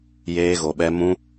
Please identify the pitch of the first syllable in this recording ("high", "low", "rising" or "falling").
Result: high